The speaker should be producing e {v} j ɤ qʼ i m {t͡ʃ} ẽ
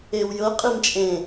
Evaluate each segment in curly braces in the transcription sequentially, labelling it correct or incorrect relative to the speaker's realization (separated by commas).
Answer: incorrect, incorrect